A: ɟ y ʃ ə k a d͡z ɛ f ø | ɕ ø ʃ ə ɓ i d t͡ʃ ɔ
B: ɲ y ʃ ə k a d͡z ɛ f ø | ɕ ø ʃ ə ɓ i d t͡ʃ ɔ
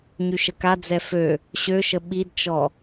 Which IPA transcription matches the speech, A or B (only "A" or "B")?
B